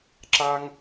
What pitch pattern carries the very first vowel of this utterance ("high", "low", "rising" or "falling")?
high